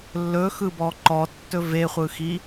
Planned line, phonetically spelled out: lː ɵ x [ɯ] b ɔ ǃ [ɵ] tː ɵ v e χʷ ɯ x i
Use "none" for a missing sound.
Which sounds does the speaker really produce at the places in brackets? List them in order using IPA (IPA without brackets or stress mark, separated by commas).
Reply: ɯ, ɔ